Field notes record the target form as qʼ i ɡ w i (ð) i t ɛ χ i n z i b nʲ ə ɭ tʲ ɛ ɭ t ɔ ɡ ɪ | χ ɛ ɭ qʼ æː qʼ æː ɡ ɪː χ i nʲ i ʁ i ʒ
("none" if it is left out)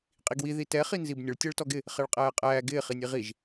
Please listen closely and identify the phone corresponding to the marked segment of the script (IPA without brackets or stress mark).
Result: ð